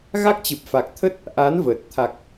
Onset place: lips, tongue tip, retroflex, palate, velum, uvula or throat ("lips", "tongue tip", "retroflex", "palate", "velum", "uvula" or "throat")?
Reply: velum